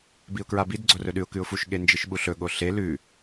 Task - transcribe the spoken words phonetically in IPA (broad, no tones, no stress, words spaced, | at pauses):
biʊ̯kɹabid ɡ͡ǀorɵɗʉʊ̯ kʉʊ̯fuʃ ɠend͡ʒɨʃɓuɬɵ ɠoɬe lʉ